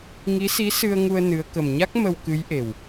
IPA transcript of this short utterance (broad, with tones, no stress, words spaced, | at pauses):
ŋi˧˥si˧˥ sɨ˧ə̯ŋu˧ə̯ nɨ˧˥ə̯ kə˨˩mɲa˦˥k̚ mə˧wkɨ˧˥jʔe˨˩w